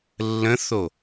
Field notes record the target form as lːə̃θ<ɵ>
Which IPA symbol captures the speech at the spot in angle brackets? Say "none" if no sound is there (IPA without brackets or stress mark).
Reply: o